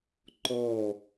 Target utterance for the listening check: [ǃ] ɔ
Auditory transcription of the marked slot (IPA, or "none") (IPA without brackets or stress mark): ǃ